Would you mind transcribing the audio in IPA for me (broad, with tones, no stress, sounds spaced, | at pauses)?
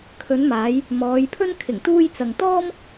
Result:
kʰ ɵ˨˧ n m aː˨˧ j | m ɔː˨˧ j pʰ ɵ˥ n kʰ ɪ˨˩ ŋ t̪ uː˧ j t͡s ɐ˨ ŋ t̪ ɔː˥ m